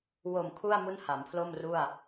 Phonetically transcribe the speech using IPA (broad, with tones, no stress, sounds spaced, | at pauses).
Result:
w o˨˩ m kʰ u˥˩ a̯ m u˥˩ n h a˩˦ m pʰ l o˥˩ m r u˥˩ a̯